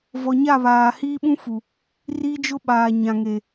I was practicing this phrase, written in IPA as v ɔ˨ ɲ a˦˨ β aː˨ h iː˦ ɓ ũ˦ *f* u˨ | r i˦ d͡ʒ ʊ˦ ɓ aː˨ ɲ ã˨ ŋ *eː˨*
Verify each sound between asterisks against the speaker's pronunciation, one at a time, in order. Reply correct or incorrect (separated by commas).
correct, incorrect